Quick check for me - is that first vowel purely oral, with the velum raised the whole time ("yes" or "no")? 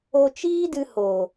yes